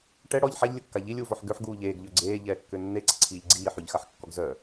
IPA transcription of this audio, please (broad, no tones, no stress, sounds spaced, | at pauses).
ʈ ɛ ɽ ɔ ʎ ħ a ʎ lʲ ə kː a ʎ i lʲ uː v ɔ ħ ɡ ø ħ ɡ uː ʎ eː ɡ ʎ ø ɡ͡ǀ eː ʎ ɛː kː ø nː e ǀ e ǀʰ iː ʎ ɡ͡ǀ iː ħ y ʎ x a ħ kː ɔ ɡ z œ